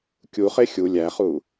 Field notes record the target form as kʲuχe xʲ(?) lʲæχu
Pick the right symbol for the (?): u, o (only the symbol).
u